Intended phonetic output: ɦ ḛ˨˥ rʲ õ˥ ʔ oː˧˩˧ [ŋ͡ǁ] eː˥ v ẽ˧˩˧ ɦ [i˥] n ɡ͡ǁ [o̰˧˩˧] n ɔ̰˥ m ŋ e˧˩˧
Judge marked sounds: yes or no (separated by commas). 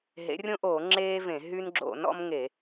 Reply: yes, no, yes